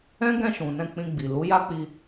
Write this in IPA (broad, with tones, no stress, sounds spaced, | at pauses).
ɛ̃˦ ɡ ɛ̃˦˨ ʃ ũ˨ n ɛ̃˧ k͡p ĩ˧ ɡ͡b i˨ l u˨˦ j a˦ k͡p i˧